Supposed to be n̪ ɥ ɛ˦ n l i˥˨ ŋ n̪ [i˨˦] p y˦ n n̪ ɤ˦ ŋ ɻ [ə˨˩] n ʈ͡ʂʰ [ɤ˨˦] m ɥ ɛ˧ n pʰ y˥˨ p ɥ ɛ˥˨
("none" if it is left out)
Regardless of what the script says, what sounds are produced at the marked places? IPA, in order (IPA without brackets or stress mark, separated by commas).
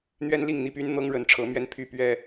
i˥˨, ə˨˦, ɤ˨˦